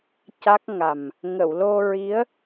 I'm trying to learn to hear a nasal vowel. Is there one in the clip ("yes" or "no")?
no